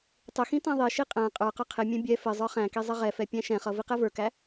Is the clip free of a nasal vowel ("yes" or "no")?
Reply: no